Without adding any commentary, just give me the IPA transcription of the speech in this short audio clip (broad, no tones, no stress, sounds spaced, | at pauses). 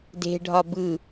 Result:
d e̤ ɖʱ ɒ b ɯ